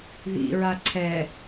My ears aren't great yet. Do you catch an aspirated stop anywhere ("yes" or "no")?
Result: yes